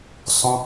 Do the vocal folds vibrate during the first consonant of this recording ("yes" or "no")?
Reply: no